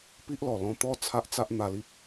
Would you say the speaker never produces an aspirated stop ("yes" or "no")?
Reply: no